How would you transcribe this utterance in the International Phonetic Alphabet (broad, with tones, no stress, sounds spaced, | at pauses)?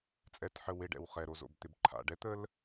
t͡sʼ ɛ˨ t ħ ə˨ w e˨ ɖ ɛ̰˨ w χ ɛ˨ ɾ o˨ z o̰˨ b t̪ ɪ˨ b ǃʰ a̰˨ ɖ ɛ˦ t̪ ə˦ l